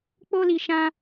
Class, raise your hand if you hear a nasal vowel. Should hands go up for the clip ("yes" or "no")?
yes